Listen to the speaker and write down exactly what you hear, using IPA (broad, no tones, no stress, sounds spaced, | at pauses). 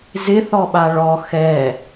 z ɪ θ ɔ ɓ a ɭ ɔ x ɛ